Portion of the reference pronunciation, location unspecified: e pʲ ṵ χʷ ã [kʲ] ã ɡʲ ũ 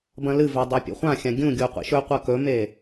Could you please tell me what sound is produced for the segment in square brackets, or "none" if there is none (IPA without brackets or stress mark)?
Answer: xʲ